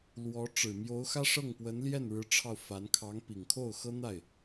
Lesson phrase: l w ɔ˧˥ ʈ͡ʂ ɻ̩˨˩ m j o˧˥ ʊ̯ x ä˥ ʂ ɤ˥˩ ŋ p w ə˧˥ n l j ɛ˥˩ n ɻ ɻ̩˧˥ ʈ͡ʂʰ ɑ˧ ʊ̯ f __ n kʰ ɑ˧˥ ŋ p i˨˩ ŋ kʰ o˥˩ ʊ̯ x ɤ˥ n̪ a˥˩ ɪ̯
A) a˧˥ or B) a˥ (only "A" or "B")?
A